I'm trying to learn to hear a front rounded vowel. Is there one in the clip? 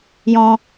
no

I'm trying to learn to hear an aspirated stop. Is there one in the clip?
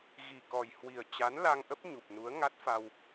no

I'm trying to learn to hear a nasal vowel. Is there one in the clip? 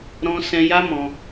yes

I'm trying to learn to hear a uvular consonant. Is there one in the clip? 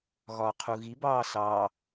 yes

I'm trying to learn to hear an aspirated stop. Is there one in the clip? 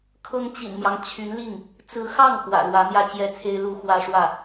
yes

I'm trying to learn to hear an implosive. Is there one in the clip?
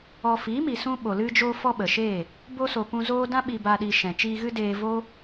yes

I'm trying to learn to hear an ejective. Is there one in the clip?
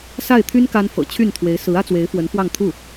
no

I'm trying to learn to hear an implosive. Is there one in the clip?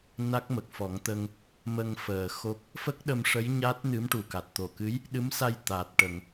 yes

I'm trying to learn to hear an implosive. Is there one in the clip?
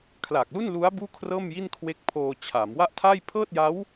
no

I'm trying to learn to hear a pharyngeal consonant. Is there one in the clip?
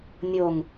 no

